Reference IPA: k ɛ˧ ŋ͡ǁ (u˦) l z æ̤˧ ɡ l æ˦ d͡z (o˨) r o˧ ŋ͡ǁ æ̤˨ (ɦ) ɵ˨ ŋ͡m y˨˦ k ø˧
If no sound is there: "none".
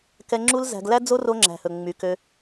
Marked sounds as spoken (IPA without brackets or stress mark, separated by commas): u˦, o˦, h